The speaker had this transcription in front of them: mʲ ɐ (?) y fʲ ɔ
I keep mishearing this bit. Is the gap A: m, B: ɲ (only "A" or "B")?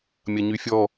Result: B